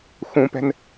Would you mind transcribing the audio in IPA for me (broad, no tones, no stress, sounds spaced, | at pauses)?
x ũ p ɛ̤ n